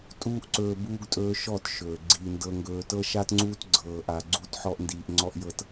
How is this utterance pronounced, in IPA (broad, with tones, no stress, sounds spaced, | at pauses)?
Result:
tʼ uː˦ ʔ ǀ ɵː˧ b uː˧ ɡ tʼ ɵː˦ ʃ ɔ˦˨ t ʃ ɵː˨ ɡ͡ǀ iː˧ n d ɤ˦ ŋ ɡ ɵː˦ t ɤ˦ ʃ a˦ t ŋ͡ǀ uː˦ t ɡ͡ǀ ɤː˧ ʔ a˧ ɡ͡ǀ u˦ t ħ ɔ˦ ʔ n d iː˧ ʔ ŋ͡ǀ ɔ˦ ʔ j ɤ˦ t